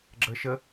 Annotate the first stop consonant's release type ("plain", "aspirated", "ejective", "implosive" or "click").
click